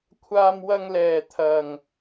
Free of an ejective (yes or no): yes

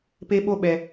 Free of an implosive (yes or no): no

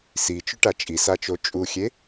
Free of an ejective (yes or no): no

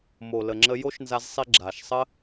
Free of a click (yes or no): no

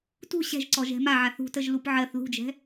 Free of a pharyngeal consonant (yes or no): no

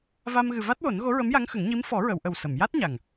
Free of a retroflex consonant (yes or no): yes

